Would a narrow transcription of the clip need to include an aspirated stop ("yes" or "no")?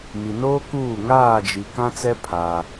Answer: yes